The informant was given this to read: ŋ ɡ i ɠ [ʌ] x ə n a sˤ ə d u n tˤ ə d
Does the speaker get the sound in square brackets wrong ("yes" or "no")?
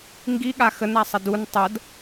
yes